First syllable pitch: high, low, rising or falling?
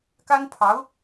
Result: high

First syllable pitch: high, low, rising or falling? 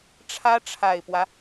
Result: high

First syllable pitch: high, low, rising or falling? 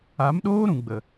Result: rising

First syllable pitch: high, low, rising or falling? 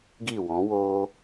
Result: falling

